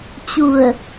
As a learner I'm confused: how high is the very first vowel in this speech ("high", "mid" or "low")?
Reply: high